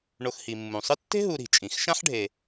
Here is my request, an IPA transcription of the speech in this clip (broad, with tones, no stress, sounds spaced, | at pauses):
ɳ o˨ x h i˩ mː ũ˩ sˤ ɨ˦ tː e̤˥ ɦ u˨ ɾ i̤˩ t͡ʃʼ ĩ˩ x ʃ ã˦ ħ ɖʱ e˨